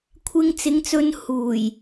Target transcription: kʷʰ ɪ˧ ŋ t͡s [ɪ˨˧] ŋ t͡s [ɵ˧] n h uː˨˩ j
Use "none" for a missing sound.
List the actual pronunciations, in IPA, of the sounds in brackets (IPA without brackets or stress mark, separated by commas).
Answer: ɪ˨˧, ɵ˧